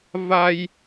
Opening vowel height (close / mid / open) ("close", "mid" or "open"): open